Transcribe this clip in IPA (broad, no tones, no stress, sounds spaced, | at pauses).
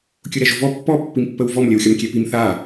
kʲ ʊ ɾ ɛ ʒ ʊ v ɔ pː ɔ pː i m pː ə w v ɔ m lʲ ə w xʲ ɒ m kʲ ɛ p i m θ a